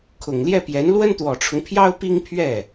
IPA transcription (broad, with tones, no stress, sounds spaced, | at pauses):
kʰ ʊ˨˩ ŋ l j ɛ˥˩ p j ɛ˧˥ n l w ə˥ n t̪ w ɔ˨˩ ʈ͡ʂʰ ʊ˦ ŋ pʰ j ɑ˥ ʊ̯ p i˥ ŋ pʰ ɥ ɛ˥˩